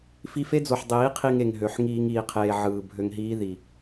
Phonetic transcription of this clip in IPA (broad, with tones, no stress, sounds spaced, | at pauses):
f i˧ f e˦ d͡z o˨ ħ dˤ iː˨˦ qʰ i˧ ŋ e˨ ŋ ɦ ø˨ ħ ŋ iː˧ ŋ iː˨ qʰ eː˨ ʕ ɯː˨ bʱ ø˧ ŋ ɦ iː˦ ð i˨